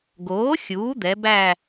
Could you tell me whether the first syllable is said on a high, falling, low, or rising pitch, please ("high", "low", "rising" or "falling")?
rising